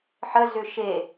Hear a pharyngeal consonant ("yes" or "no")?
yes